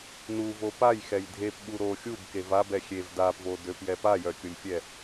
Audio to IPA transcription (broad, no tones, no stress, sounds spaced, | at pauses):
n u v o p a j x ɛ j dʱ e p ɓ u ɾ o xʲ u b k e v a b ɛ xʲ e v d a p v o d ø p j ɛ p a j œ kʲ o lʲ fʲ ɛ